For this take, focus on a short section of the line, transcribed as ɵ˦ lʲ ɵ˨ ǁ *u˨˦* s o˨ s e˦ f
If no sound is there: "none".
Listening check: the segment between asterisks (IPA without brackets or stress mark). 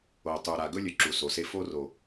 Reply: u˨